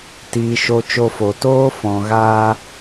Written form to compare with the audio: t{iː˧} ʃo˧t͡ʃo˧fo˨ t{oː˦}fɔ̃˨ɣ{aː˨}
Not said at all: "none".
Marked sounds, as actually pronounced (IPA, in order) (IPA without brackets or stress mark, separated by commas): iː˧, oː˦, aː˧